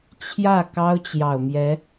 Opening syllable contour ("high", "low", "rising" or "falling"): falling